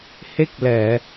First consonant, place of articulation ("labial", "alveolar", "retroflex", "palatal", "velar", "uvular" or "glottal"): glottal